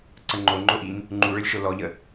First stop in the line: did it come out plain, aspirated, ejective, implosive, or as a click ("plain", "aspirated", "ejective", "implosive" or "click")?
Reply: click